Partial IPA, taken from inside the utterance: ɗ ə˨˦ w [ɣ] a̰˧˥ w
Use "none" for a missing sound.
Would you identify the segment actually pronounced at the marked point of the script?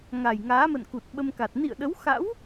x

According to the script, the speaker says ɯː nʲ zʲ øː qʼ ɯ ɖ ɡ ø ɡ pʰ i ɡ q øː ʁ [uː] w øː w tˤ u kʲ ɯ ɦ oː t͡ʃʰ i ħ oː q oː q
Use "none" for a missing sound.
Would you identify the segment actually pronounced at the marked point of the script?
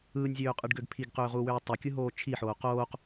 uː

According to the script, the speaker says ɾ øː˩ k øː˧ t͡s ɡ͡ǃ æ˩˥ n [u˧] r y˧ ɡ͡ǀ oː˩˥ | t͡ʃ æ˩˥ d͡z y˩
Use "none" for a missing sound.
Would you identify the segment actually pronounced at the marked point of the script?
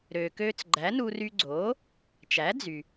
u˧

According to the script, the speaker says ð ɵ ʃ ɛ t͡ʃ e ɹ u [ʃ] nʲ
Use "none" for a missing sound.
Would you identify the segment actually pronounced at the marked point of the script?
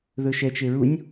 none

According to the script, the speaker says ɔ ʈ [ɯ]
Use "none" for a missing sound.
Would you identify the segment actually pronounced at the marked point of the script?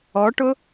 ʊ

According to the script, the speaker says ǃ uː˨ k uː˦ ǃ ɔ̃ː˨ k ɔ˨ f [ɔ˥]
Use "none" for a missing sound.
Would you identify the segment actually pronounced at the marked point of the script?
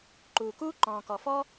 ɔ˥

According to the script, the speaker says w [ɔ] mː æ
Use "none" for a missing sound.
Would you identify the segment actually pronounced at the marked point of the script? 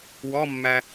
ɔ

